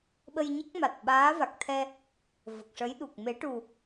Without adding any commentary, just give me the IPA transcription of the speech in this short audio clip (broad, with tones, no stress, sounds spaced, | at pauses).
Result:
ɓ ə˧ j ɲ ə˦˥ k̚ m a˨˩ t̚ ɓ aː˧˥ v a˨˩ k̚ t̪ʰ ɛ˧ | v ə˨˩ k̚ ʂ ə˧˥ j ɗ u˨˩ k̚ m e˨˩˦ ʈ u˨˩